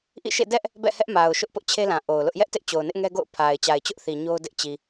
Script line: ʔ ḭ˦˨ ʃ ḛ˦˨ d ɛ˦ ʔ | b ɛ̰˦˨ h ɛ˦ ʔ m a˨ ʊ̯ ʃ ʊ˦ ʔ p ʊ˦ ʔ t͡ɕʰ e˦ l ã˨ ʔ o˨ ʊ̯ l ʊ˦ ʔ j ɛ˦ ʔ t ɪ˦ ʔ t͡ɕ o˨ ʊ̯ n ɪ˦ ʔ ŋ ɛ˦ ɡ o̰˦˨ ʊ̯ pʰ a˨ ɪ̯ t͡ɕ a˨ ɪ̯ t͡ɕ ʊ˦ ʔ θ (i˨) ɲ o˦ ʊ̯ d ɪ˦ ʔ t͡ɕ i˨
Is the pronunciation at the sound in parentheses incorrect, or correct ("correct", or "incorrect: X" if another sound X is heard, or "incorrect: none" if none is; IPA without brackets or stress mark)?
correct